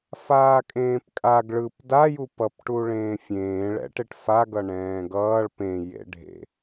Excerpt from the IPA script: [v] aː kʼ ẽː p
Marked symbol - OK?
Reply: no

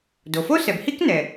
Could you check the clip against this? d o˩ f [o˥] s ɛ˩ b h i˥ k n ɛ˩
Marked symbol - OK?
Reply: yes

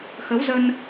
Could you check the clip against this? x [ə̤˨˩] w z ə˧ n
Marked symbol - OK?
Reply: no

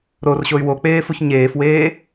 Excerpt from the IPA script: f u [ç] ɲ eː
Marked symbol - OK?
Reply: yes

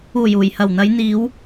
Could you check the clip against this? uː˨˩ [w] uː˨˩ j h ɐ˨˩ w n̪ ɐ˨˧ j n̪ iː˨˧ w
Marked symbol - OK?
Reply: no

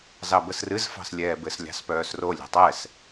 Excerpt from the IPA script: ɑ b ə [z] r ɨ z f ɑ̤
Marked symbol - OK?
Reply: no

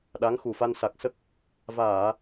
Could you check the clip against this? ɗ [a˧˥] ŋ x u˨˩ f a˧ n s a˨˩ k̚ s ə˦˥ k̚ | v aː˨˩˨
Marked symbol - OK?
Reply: yes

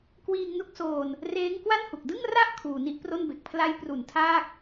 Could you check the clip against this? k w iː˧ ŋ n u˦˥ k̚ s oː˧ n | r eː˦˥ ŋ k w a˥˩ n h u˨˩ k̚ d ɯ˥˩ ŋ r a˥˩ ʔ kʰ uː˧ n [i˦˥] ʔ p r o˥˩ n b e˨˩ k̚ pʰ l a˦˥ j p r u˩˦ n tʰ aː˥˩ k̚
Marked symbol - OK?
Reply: yes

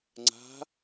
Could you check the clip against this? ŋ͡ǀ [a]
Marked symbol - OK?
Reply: no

